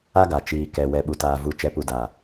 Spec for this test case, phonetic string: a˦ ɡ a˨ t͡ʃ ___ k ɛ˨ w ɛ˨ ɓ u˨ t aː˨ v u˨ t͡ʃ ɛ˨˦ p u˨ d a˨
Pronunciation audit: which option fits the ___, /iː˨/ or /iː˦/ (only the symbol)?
iː˨